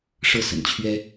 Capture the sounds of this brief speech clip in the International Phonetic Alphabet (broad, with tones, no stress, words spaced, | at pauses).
ʂɤ˥˩sə̰˨˩nt͡ɕʰɥɛ˥